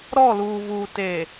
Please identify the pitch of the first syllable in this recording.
falling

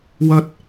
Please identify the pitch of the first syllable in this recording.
high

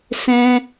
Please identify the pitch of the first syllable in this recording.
high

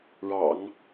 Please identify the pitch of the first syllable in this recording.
low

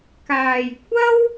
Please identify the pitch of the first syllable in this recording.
low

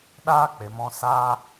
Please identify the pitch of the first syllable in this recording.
high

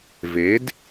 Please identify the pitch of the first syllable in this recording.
rising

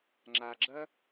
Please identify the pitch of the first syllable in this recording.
low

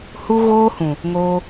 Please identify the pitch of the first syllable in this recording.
high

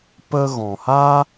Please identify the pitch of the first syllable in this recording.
high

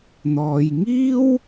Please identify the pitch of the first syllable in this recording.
low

